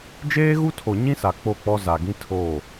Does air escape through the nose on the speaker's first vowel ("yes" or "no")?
no